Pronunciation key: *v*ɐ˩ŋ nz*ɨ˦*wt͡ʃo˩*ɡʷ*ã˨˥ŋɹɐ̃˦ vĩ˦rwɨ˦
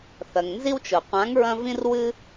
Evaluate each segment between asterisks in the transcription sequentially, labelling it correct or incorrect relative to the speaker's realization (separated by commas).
incorrect, incorrect, incorrect